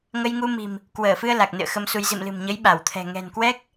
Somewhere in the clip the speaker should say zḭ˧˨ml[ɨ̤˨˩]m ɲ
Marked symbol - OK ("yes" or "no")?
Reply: yes